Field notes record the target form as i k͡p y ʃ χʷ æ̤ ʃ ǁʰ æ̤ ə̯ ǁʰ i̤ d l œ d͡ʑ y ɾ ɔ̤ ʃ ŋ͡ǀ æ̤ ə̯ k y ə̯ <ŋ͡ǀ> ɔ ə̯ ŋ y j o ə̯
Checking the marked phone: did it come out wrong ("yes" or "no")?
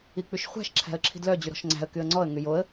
no